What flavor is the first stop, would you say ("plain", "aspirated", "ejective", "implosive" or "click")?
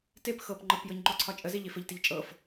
plain